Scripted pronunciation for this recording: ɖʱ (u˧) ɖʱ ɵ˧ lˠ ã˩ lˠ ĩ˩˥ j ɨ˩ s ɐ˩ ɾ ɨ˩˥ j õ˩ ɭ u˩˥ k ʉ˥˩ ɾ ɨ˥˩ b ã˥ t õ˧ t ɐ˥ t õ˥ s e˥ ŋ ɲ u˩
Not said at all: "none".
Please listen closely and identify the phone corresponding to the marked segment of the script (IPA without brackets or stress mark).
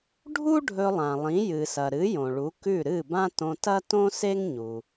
u˥